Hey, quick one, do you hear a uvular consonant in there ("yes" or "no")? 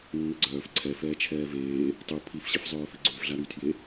no